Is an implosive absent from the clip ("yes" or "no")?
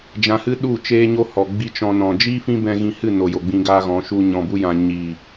no